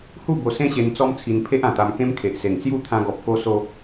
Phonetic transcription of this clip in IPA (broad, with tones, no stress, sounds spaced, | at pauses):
h u˥˧ b o˧ s ẽ˦ ɕ e˧ n t͡s ɔ˦ m t͡sʰ i˧ n pʰ e˦ ʔ ã˨˩ t̪ a˧ m k ẽ˦ m kʰ e˨ ʔ s e˨˩ ŋ t͡s j u˥˧ t̪ʰ ã˧ ɡ ɔ˨ p̚ k o˧ s o˧